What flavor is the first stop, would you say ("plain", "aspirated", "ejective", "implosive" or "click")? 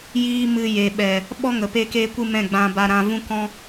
implosive